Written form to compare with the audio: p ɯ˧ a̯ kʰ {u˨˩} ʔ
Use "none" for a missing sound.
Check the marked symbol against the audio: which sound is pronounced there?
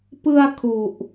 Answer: u˨˩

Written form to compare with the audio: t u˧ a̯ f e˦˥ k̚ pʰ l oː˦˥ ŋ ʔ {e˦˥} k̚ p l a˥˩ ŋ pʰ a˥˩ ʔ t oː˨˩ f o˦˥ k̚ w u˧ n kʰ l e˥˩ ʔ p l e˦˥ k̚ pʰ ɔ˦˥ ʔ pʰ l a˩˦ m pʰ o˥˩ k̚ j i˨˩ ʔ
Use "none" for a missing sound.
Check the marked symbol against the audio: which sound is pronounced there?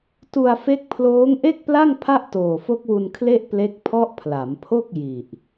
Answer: e˥˩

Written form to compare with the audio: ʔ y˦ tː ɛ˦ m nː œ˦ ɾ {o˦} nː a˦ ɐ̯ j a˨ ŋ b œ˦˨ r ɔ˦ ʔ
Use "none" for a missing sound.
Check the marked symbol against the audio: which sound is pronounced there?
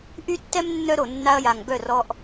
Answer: o˨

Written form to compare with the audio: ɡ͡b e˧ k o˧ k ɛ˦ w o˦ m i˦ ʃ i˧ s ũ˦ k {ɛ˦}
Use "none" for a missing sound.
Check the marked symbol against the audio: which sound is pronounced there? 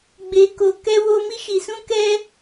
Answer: ɛ˦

